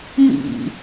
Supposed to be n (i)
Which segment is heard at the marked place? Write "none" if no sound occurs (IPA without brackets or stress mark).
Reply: ḭ